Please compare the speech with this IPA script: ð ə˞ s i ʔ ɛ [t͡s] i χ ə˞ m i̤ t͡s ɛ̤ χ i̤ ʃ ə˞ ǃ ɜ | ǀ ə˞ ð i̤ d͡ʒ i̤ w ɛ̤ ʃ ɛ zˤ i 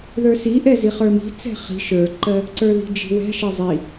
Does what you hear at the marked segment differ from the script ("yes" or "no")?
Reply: yes